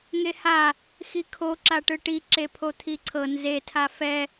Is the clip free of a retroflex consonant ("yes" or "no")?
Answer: no